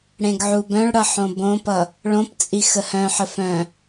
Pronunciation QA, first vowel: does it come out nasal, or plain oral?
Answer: nasal